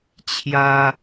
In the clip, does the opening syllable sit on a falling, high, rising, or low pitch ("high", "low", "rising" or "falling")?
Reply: high